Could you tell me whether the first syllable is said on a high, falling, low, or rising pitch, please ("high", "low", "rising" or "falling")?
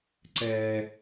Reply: low